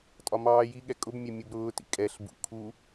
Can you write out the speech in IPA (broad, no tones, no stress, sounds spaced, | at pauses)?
tʼ ɒ m ɑː j i ɠ ɛ kʼ ʊ b mʲ ɛ mʲ u b ɾ ʊː t ḭ kʼ ɛ ɬ b ṵ kʰ u